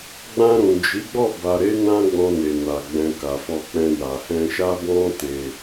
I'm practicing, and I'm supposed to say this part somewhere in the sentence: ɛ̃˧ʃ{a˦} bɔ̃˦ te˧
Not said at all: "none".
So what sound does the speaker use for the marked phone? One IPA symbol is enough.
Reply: a˦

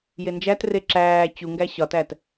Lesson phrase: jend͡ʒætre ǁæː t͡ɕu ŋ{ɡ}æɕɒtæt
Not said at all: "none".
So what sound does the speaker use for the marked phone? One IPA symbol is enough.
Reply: ɡ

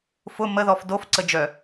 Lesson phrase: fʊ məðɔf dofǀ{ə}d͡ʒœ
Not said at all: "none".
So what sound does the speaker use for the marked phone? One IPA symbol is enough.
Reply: ə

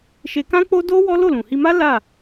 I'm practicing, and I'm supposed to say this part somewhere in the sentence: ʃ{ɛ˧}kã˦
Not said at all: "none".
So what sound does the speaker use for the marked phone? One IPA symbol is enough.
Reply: e˧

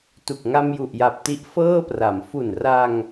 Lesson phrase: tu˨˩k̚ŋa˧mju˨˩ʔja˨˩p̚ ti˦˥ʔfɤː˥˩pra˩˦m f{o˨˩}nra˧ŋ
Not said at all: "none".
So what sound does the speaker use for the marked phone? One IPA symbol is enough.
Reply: u˨˩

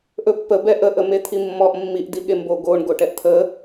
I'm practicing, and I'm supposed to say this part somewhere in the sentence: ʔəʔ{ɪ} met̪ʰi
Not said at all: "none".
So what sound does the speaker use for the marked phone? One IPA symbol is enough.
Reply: ə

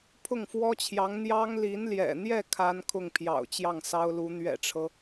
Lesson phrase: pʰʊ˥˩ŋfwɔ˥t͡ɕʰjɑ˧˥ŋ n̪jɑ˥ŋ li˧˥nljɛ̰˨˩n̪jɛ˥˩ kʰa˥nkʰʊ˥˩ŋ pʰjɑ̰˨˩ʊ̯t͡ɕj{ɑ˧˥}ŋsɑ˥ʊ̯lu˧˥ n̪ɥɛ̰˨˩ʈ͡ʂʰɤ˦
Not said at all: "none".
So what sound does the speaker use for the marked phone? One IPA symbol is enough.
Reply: ɑ˥˩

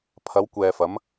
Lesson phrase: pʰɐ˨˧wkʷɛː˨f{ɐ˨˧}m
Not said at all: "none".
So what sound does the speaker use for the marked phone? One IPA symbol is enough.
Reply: ɐ˨˧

